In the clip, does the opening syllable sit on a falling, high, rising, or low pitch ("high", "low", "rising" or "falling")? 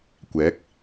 rising